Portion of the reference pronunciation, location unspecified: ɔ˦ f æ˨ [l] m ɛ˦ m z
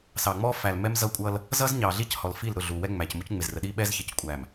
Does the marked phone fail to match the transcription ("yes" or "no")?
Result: no